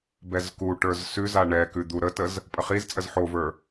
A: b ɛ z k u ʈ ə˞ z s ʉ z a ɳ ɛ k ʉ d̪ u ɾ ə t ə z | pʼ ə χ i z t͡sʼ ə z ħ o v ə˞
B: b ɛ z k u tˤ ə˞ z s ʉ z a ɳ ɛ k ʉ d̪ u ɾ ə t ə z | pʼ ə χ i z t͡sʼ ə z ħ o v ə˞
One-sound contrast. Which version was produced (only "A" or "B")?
A